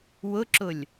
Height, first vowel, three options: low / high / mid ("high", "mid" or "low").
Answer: high